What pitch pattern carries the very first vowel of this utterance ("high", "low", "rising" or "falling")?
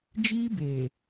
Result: high